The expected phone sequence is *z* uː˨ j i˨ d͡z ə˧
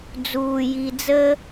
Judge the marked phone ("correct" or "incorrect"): incorrect